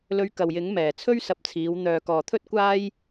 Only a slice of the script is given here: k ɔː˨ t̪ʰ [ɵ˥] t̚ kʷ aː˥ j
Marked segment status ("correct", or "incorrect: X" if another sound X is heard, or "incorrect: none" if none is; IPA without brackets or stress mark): correct